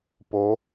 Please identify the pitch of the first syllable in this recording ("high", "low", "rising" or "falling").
rising